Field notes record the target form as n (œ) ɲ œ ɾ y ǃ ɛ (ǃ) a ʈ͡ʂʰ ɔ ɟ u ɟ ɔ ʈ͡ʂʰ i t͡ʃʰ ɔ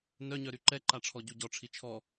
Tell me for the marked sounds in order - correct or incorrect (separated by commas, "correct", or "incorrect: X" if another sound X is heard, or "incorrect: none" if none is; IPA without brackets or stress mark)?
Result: correct, correct